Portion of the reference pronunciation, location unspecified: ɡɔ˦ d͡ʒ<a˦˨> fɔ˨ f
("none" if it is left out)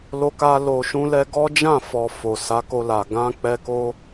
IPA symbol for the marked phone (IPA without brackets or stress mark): ã˦˨